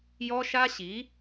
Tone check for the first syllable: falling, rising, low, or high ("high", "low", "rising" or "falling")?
high